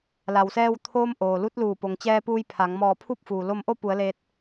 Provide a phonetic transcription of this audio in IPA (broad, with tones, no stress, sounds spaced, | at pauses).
l a˩ w s ɛː˧ w t̪ʰ oː˧ m ʔ oː˩ l u˧˥ t̚ l uː˧˩ p o˩ ŋ t͡ɕ ɛː˧ p uː˧ j pʰ a˩˧ ŋ m ɔː˧˩ pʰ u˥˨ p̚ f uː˩ l o˧ m ʔ o˥˨ p u˩˧ ə̯ l e˧ t̚